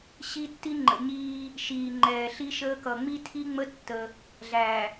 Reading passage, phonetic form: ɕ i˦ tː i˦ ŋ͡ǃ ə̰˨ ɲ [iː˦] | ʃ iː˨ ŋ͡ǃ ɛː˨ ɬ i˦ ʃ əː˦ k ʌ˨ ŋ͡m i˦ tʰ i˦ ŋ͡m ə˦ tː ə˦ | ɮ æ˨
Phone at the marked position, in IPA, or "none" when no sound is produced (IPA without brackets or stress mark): iː˦